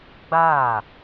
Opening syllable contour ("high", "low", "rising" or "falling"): falling